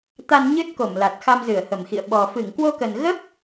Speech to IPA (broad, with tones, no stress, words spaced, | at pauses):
t̪a˧nɲɨ˦˥t̚ko˧˩mla˨˩t̚ xa˧mzɨ˧˩ə̯hə˧˩mxḭ˧˨ə̯ ɓɔ˨˩ fɨ˧˩ŋkwo˧kə˨˩nɣə˦˥p̚